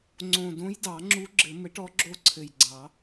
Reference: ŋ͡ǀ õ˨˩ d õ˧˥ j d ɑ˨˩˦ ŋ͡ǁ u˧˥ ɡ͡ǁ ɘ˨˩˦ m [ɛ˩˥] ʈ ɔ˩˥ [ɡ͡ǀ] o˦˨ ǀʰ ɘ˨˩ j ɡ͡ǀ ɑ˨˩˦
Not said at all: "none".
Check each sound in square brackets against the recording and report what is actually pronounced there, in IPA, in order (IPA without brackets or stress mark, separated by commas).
ɘ˩˥, ɡ͡ǁ